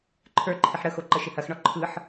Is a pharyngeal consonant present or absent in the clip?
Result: present